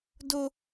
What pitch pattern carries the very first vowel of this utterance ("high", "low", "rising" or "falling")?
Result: high